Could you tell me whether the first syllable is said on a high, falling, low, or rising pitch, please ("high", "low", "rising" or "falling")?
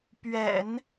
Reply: low